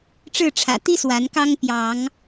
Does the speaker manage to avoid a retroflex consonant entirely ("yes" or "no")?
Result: no